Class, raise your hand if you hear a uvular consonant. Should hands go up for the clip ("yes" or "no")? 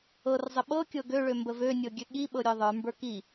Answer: no